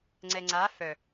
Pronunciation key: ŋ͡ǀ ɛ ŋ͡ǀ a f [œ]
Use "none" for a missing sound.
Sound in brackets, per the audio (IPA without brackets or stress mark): œ